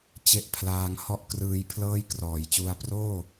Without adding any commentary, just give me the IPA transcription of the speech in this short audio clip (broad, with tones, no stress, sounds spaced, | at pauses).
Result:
t͡ɕ e˥˩ ʔ pʰ l aː˧ ŋ h ɔ˥˩ ʔ k r ɯː˧ j pʰ l ɤː˥˩ j k r ɔː˩˦ j t͡ɕ u˧ a̯ p r oː˥˩